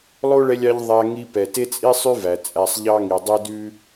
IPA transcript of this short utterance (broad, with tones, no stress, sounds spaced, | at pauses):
lˠ o˥ ɭ ɛ˦ lʲ ɑ˦ ʎ ðˤ æ˦ ŋ i˦ p ɛ˨ t e˥ t͡sʼ i˥ sˤ ʉ˥ v æ˩ t͡sʼ æ˨ sˤ ʎ ɑ˦ ŋ i˩ dˤ e˦ d ʉ˦